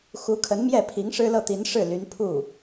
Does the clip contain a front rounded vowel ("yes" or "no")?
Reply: yes